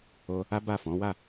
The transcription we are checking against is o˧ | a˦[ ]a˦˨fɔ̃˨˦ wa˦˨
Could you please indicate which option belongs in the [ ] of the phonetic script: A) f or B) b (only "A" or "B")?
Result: B